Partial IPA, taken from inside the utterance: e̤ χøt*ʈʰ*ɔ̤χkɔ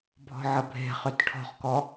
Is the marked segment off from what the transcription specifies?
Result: no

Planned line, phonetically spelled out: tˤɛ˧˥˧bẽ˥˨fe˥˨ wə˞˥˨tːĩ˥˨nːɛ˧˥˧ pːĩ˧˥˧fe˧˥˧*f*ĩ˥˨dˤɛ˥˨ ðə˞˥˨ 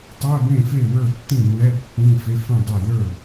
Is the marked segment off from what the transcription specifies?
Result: no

